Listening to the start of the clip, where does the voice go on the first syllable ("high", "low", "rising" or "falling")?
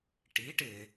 rising